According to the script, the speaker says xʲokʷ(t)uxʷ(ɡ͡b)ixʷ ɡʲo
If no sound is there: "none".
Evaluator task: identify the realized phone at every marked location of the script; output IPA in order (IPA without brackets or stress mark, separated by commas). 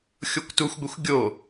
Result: t, ɡʷ